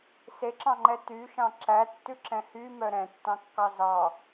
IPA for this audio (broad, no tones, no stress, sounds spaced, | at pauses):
s e ǁ ɑ̃ ŋ͡ǃ ɛ t y ʃ ɑ̃ ǁ æ tː ʉ ǁ ɛ̃ h y m œ ɾ ɛ̃ tː ɑ̃ kː ɑ z ɑ